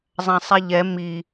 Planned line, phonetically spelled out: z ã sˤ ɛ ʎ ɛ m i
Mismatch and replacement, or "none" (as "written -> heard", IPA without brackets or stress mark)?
z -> zˤ